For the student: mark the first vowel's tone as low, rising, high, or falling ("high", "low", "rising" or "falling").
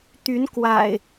rising